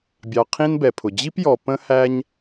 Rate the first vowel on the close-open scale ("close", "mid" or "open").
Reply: open